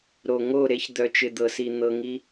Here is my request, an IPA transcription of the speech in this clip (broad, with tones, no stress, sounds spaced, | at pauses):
ɾ o˨ ŋ o˦˨ ɾ e˦ ç d̪ œ˨ t͡ʃ ɪ˨ d̪ ɤ˨ s i˨ n̪ ɤ˧ ŋ i˦